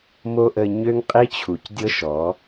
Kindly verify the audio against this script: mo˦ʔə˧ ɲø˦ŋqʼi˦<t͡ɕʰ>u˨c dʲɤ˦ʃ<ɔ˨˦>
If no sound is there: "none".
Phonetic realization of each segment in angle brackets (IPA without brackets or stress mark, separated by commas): t͡ɕʰ, ɔ˨˦